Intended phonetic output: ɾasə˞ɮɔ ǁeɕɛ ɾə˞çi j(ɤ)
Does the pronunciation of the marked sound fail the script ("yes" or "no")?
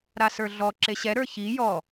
yes